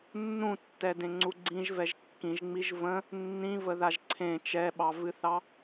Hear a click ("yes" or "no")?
yes